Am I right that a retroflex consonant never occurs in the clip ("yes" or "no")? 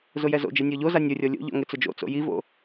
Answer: yes